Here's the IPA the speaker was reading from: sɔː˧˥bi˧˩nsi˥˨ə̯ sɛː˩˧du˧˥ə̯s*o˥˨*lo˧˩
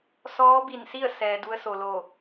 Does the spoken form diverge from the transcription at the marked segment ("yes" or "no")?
yes